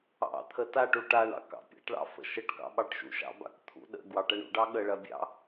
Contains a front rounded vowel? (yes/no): no